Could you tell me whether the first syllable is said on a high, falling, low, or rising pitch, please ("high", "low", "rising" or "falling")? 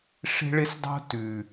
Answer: high